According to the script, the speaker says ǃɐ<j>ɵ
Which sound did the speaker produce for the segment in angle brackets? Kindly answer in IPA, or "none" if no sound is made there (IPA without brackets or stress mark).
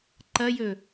j